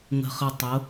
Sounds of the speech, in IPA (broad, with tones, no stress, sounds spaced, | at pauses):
ŋ ə̤˨ χ ə˨ tˤ ʊ˨˦